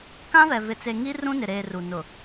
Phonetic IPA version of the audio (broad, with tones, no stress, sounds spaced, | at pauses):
k ã˦ v ɛ˨ v ɪ˨ t͡s e˨ ŋ i˦ r ũ˦ n ɪ˨ ɾ eː˨ r u˨ n ʊ˨